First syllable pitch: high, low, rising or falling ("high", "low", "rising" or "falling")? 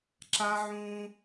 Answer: high